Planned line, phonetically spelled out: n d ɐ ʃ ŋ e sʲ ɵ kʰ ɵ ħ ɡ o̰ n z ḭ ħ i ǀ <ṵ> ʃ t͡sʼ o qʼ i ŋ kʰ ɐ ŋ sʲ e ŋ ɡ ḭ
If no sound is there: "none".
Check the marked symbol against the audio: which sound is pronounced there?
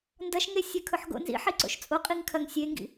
o̰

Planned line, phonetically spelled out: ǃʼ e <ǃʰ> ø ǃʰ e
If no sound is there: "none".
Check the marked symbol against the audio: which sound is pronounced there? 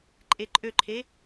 ǃʼ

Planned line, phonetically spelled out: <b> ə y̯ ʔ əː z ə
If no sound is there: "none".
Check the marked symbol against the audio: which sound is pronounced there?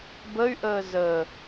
b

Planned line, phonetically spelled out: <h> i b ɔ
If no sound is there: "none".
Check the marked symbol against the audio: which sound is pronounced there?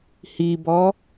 h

